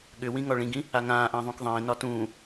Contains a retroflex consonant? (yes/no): yes